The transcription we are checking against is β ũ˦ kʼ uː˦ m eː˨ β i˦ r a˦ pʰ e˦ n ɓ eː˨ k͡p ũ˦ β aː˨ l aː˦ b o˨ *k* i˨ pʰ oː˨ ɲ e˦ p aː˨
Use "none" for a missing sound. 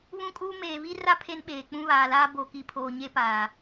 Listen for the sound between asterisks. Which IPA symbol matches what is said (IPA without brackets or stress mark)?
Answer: k